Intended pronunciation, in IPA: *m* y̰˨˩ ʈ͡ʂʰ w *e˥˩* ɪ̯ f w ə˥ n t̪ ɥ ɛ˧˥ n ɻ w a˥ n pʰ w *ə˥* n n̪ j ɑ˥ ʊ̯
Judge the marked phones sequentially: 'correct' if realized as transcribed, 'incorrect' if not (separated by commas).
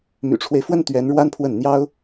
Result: correct, incorrect, incorrect